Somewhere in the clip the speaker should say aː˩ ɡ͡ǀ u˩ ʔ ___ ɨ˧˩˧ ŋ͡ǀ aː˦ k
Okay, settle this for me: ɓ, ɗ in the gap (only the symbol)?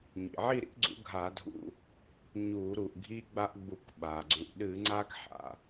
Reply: ɗ